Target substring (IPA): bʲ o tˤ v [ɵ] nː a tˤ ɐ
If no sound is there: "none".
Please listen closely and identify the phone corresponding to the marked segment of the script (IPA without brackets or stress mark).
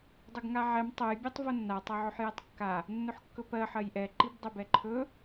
o